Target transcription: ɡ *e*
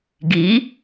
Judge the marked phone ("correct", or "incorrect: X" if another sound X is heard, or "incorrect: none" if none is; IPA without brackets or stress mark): incorrect: i